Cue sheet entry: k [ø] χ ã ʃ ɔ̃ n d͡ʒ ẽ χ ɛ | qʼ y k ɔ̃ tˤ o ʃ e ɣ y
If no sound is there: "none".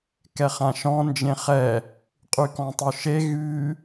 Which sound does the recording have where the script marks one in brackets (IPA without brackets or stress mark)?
ɛ